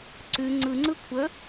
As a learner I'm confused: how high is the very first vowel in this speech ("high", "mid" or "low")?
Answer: high